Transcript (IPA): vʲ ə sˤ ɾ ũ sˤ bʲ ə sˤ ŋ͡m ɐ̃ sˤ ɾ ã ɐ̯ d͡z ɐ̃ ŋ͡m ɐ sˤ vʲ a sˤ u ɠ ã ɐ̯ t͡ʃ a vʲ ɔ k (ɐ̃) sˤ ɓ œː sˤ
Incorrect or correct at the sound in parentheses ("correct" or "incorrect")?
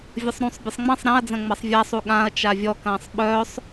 incorrect